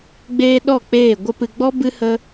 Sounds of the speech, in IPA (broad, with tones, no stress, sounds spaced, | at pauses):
ɡ͡b eː˦ ɗ ɔ˦˨ k͡p eː˦˨ ɡʷ ə˧ p ɨ˨ ɡ͡b ɔ˦ b ɨ˦ h ə˦